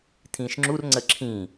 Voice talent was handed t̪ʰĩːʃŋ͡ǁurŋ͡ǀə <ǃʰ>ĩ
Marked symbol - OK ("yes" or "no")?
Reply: no